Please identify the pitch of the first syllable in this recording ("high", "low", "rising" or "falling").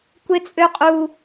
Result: high